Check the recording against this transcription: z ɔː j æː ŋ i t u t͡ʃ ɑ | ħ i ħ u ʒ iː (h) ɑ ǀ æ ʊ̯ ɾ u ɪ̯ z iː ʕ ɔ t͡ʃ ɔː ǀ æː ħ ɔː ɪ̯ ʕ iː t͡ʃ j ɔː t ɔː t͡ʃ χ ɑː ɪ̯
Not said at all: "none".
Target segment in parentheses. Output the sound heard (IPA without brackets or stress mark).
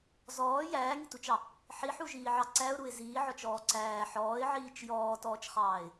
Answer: ʕ